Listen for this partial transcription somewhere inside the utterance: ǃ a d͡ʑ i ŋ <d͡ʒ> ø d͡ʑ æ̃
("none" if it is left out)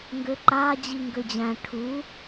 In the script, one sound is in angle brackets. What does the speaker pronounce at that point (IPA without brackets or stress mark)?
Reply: ɡ